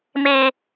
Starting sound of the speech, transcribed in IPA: m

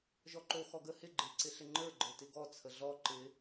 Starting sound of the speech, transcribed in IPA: ʒ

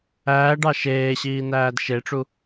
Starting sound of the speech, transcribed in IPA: æː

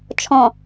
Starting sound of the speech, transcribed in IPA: t͡ʃʰ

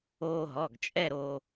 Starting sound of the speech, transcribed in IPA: oː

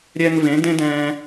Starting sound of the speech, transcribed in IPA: ɾʲ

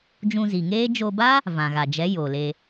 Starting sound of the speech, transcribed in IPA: d͡ʒ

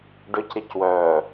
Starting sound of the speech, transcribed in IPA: ɖ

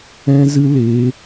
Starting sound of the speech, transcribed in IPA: ɛ̃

